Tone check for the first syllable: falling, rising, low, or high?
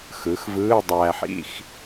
rising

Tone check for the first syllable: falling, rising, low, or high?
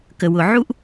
low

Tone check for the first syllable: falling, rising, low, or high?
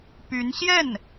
rising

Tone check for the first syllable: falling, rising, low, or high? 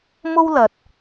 high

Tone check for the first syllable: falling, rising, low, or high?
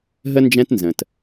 high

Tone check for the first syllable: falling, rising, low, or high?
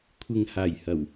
low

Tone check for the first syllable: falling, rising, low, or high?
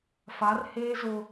rising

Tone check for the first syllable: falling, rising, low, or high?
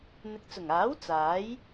low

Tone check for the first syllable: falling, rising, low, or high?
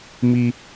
high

